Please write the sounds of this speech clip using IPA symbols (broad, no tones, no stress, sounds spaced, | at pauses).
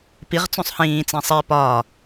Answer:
p i ʁ t͡s ũ sˤ h ĩː t͡s ĩ sˤ i p ɒː